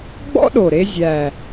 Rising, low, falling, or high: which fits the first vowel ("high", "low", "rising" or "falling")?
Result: high